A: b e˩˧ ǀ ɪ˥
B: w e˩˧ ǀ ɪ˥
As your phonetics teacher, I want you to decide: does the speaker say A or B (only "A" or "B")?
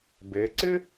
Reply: A